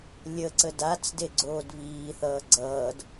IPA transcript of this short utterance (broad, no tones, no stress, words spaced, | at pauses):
lʲəǀə dat͡sde ɡ͡ǀoːdβiːθʌː ɡ͡ǀʌːd